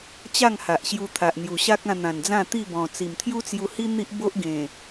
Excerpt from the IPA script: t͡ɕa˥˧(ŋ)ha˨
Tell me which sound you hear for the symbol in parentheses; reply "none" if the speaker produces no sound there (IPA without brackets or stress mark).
ŋ